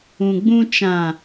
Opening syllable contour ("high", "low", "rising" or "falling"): low